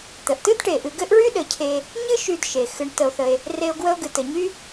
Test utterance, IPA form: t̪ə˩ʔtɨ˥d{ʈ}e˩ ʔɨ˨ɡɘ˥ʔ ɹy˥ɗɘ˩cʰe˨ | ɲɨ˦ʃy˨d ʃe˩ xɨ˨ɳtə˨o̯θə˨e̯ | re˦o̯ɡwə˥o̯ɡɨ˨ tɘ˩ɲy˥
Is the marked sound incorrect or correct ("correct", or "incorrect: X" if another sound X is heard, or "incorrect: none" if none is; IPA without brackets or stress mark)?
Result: correct